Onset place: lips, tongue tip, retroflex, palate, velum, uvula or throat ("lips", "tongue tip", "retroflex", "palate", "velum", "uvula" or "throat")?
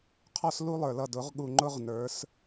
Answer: uvula